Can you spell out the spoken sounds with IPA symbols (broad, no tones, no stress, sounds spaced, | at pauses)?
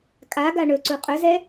kʼ a ɡ a ɳ ɵ ǀ u qʼ ɵ z ɛ